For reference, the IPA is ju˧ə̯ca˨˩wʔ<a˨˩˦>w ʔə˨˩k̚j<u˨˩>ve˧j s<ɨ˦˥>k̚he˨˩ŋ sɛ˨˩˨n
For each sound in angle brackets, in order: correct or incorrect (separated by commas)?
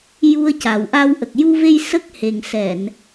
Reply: incorrect, incorrect, incorrect